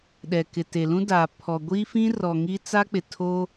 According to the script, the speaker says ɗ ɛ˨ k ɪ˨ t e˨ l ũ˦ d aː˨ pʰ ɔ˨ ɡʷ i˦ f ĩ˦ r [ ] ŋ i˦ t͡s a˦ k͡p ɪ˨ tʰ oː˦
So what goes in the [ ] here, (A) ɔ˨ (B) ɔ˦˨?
A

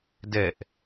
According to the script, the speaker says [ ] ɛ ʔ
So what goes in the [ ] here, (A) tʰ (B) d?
B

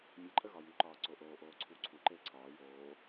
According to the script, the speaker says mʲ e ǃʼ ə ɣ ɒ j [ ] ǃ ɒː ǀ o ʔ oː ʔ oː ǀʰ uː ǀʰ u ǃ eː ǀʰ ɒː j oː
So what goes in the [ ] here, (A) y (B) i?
A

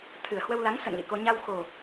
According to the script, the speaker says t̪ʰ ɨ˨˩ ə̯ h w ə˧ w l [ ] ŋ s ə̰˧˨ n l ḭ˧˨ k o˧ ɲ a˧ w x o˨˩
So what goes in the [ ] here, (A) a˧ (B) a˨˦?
B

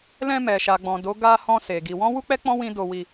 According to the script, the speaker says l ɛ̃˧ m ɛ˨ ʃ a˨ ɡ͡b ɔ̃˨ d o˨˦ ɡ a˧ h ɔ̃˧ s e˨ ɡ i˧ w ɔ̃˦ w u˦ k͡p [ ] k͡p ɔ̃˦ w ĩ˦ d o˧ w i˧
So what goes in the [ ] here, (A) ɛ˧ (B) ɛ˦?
B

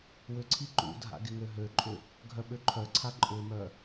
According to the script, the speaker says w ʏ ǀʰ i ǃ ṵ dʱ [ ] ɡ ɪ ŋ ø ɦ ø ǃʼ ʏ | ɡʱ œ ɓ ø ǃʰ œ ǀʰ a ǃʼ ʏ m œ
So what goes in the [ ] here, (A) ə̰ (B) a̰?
B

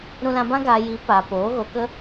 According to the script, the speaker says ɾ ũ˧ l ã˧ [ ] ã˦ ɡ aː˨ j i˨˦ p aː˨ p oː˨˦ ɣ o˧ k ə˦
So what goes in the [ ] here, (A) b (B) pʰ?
A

